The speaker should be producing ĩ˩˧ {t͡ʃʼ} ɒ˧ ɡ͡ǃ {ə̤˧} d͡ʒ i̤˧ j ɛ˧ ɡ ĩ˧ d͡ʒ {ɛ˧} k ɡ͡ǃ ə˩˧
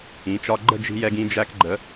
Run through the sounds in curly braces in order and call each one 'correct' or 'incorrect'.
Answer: incorrect: t͡ʃ, incorrect: ə̤˥˧, incorrect: æ˧

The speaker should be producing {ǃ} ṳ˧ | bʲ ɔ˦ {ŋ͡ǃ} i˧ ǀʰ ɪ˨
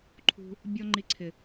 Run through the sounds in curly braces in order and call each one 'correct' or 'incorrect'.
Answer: incorrect: ǃʰ, correct

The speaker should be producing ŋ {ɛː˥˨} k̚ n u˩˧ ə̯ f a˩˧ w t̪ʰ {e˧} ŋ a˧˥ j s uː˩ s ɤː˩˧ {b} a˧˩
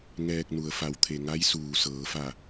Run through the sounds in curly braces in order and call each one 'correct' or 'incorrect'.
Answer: incorrect: ɛː˧, incorrect: e˩, incorrect: f

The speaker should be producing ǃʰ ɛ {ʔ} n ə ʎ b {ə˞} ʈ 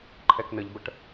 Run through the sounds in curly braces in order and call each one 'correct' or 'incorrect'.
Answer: incorrect: k, incorrect: ə

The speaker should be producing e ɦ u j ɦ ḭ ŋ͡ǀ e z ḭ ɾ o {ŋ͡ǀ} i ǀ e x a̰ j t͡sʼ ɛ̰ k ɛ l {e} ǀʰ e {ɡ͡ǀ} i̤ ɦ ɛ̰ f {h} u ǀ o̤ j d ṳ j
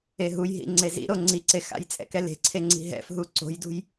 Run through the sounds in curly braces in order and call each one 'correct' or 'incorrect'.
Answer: correct, incorrect: e̤, incorrect: ŋ͡ǀ, incorrect: ɦ

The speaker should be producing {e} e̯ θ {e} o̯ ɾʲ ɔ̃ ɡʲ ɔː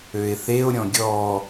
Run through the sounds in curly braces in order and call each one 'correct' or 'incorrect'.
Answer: incorrect: ø, correct

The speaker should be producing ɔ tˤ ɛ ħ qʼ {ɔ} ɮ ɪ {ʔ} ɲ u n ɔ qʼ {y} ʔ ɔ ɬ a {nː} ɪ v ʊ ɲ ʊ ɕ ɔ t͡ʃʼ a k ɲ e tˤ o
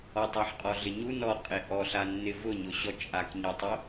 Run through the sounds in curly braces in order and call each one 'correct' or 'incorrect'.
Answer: correct, incorrect: none, incorrect: e, correct

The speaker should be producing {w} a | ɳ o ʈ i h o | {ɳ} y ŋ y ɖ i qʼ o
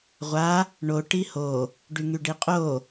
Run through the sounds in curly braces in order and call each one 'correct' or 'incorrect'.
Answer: incorrect: ʁʷ, incorrect: ɖ

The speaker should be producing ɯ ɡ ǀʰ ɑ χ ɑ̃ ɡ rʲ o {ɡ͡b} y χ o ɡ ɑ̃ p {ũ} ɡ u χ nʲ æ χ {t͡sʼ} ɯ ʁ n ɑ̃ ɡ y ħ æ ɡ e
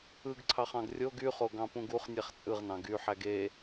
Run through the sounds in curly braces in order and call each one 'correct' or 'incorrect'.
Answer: incorrect: ɡ, correct, correct

